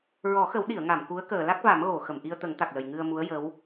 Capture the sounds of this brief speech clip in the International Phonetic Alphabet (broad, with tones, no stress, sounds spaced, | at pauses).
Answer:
ɹ ɔ˨˩˦ x ə˨˩˦ w ɗ i˨˩˨ ə̯ ŋ a˨˩˨ m k u˧˥ ə̯ k əː˨˩˨ l a˦˥ k̚ v a˨˩˦ m ɣ o˨˩˨ x ə˨˩˨ m ʔ i˧ ə̯ t̪ ə˨˩˦ ŋ t̪ a˨˩ k̚ l ə˨˩ j ŋ ɨ˧ ə̯ m u˧˥ ə̯ j ə˧˥ w